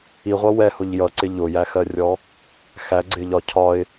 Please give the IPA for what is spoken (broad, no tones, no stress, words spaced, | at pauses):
iʁʷʌ wɛhʊʎ jʌǀɪ ʎʊjæxɜrʲɔ | xæɡ͡ǀɪʎɒ cʰɒɪ̯